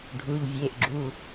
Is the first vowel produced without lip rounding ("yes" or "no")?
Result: no